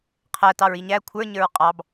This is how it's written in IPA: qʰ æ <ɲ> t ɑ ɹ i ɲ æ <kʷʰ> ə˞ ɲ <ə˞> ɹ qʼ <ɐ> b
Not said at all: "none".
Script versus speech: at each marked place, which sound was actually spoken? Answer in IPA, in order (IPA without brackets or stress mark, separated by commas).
none, kʷʰ, ə˞, ɑ